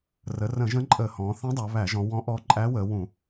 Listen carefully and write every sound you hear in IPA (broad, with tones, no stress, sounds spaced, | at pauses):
r ə˩˧ r ə̃˧˩˧ ʒ ə̃˧˥ ǃʼ ə˧˩˧ h ɔ̃˩˧ θ ə̃˧˥ dˤ æ˩˧ β æ˧˩˧ ʒ ɔ̃˩˧ w ɔ̃˧˥ ʔ ɔ˧˥ ǃʼ æ˧˥ w ə˩˧ w ũ˧˩˧